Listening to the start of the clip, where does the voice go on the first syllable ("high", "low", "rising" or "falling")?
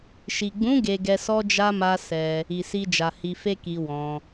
low